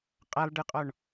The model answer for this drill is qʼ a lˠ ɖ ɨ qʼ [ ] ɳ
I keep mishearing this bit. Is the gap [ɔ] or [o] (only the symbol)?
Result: ɔ